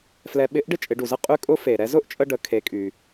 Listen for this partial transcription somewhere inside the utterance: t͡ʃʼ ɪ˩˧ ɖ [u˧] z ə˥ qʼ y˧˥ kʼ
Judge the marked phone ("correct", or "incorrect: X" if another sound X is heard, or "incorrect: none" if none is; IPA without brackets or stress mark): incorrect: u˩